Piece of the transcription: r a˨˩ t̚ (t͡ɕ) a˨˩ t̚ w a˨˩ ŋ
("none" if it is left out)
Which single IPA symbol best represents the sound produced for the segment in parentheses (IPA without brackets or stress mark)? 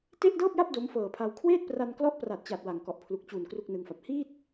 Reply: t͡ɕ